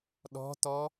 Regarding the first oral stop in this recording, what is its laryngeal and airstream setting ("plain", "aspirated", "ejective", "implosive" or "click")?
implosive